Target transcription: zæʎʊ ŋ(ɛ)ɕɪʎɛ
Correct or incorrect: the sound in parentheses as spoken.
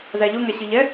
incorrect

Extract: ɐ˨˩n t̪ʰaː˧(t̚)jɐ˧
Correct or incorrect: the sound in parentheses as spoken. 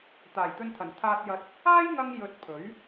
correct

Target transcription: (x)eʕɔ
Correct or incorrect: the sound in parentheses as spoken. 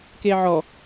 incorrect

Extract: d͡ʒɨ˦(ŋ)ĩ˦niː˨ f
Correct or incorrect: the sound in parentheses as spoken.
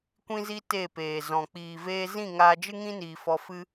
correct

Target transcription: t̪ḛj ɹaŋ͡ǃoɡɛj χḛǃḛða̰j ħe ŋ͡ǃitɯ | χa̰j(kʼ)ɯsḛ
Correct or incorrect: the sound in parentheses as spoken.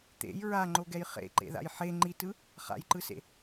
incorrect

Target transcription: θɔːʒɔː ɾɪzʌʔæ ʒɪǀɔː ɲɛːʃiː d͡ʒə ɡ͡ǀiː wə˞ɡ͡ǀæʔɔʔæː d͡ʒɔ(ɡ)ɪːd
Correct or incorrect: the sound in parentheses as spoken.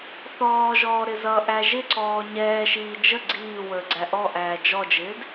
incorrect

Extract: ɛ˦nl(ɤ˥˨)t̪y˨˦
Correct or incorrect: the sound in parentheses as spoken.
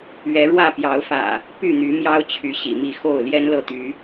correct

